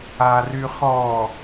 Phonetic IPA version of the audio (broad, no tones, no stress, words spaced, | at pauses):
aryχɔ